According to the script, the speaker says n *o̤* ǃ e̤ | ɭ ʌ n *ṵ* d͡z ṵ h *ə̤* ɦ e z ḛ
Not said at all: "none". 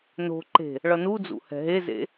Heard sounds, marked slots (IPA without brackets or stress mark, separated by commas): o̤, u, ɛ̤